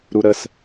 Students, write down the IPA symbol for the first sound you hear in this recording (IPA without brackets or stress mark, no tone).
ɾ